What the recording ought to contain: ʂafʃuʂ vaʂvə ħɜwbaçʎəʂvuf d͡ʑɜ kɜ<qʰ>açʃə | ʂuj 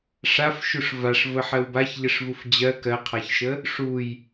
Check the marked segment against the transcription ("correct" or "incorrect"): correct